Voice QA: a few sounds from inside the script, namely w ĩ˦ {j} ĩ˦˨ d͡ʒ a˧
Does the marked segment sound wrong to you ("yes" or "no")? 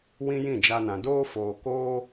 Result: no